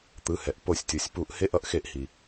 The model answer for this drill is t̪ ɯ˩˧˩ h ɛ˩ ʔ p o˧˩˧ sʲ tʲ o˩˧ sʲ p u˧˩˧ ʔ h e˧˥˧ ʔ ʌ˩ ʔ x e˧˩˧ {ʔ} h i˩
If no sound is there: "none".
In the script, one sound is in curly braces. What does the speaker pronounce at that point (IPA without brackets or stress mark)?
ʔ